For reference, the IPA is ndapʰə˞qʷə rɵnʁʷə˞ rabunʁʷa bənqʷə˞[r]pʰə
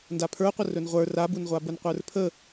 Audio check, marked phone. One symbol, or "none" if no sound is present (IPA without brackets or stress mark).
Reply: r